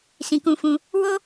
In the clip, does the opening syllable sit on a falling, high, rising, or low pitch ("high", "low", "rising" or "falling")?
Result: low